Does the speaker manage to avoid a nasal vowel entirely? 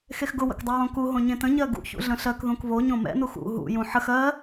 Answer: no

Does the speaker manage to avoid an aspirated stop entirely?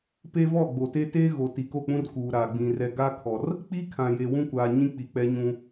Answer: no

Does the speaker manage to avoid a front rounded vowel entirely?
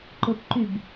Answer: no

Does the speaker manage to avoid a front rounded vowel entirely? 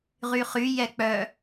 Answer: no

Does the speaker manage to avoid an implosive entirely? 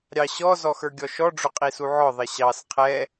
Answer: yes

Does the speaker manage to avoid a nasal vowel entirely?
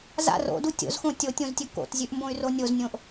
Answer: no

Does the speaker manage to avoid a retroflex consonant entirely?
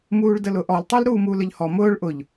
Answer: no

